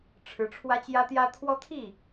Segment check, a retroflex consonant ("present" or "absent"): present